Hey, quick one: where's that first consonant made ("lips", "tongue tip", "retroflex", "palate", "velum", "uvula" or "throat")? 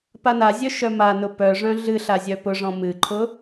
lips